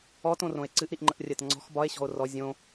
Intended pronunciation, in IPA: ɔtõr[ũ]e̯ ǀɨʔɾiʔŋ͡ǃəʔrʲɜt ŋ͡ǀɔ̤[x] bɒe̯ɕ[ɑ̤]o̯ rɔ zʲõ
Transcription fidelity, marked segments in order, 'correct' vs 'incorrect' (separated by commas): incorrect, correct, incorrect